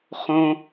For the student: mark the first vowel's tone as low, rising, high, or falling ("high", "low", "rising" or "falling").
low